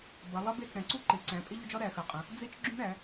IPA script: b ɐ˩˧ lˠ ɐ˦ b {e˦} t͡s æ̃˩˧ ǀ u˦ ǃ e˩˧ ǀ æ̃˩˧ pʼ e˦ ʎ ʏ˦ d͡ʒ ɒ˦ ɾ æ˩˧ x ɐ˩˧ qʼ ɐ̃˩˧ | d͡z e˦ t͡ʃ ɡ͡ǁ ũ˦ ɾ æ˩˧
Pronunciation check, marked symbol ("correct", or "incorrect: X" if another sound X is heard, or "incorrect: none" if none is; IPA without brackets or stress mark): correct